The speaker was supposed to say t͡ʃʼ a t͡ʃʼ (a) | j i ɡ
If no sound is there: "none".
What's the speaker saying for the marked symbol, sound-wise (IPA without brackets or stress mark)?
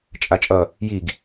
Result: ʌ